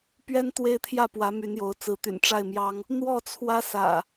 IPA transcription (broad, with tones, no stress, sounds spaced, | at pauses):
p ɥ ɛ˦ n t̪ w e˦ ɪ̯ t̪ʰ j ä˥˨ p w ä˨˦ m y˨˦ n j o˨˦ ʊ̯ t͡s ɹ̩˨˦ t̪ y̰˨˩ n ʈ͡ʂ a˥˨ ɪ̯ m j ɑ˦ ŋ | n̪ w ɔ˥˨ t͡sʰ w ä˦ s ä̰˨˩